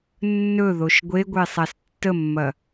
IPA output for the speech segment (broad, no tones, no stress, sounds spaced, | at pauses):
nː ɵ ð o ʃ ɡʷ e ɡʷ e sˤ a s tː ə mː ɐ